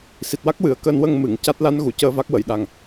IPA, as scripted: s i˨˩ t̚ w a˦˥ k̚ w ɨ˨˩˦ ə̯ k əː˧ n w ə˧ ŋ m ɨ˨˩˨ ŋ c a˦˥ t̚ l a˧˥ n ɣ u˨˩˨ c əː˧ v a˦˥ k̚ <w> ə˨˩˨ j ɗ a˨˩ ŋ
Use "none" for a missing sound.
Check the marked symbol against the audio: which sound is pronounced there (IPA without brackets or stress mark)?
w